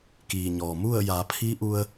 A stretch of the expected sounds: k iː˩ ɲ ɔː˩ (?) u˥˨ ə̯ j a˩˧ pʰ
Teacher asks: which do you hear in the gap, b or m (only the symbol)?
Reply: m